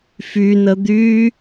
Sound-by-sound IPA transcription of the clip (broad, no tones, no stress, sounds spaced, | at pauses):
f y n ə d̪ y